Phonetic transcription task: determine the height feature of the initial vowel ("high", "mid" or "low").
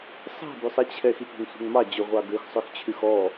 mid